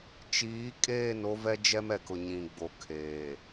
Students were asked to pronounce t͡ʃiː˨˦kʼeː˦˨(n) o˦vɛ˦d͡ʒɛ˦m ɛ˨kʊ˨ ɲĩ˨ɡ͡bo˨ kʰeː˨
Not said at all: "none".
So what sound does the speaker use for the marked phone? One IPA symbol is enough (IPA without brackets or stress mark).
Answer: n